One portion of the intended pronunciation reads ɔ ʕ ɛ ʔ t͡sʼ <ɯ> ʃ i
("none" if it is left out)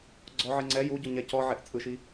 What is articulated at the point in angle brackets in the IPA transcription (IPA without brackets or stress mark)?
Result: ɯ